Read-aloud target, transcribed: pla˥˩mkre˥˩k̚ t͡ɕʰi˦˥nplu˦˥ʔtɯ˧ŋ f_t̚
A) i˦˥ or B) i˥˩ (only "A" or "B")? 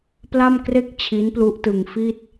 B